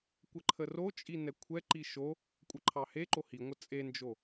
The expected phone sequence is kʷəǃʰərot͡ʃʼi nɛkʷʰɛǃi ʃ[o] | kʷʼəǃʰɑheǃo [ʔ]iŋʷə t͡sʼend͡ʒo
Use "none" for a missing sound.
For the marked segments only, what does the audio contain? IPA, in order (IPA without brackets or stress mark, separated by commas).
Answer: o, h